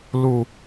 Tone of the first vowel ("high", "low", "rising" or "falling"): low